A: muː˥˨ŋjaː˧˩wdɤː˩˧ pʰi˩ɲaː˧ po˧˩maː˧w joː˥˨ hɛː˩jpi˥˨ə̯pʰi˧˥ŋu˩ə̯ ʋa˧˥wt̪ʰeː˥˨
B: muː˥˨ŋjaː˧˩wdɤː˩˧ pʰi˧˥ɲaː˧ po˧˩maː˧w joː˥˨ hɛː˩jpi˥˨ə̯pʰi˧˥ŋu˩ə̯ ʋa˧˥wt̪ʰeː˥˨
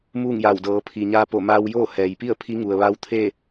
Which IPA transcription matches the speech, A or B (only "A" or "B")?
A